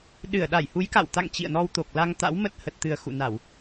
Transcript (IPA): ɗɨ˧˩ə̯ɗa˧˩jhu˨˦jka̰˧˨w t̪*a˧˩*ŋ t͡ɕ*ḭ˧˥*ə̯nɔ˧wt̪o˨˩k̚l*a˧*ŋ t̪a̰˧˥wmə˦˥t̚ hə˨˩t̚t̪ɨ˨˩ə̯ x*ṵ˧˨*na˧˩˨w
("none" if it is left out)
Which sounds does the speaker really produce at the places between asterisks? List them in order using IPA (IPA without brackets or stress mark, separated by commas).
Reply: a̰˧˨, ḭ˧˨, a˧, ṵ˧˨